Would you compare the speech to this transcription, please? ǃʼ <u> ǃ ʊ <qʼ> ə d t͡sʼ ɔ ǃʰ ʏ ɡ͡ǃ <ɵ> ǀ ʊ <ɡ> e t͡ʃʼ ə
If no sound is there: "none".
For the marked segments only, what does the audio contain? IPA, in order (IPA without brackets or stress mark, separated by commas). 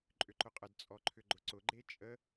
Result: ʏ, qʼ, ʊ, ɡ͡ǃ